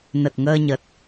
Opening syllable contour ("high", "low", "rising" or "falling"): low